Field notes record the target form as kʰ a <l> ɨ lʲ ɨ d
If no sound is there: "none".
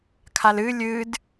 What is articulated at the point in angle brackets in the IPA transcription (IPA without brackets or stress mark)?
l